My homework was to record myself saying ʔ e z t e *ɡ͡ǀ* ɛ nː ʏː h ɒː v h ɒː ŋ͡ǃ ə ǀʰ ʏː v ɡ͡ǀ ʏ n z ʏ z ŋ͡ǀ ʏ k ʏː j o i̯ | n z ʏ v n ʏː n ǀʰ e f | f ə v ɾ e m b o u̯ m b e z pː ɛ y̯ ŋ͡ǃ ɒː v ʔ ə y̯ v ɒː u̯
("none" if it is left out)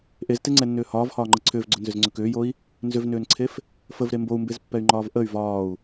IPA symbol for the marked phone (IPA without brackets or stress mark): ŋ͡ǀ